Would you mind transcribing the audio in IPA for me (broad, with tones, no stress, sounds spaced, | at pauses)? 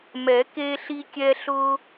m ɛ˨˩˦ k e˦ ɬ i˦ kʲ ɛ˦ ɬ ʊ˦